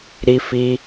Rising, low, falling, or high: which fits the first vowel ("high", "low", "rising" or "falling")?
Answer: high